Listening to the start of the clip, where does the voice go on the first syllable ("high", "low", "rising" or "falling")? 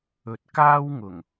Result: rising